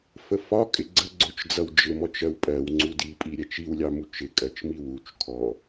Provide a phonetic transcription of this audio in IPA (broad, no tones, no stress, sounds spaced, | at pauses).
f ə f ɒ kʼ ɪ ɡ͡ǀ ə ɡ͡ǀ ʊ t͡ʃ d͡z ʌ w d͡ʒ ɪ m ɔ t͡ʃ ɜ w pʼ ɜ w ŋ͡ǀ u d i pʼ i ɾʲ ɛ t͡ʃ i w lʲ ɑ m u t͡ʃ ɪ kʼ ɜ t͡ʃ m i w u t͡ʃ kʰ ɔ